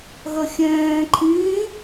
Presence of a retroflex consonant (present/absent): absent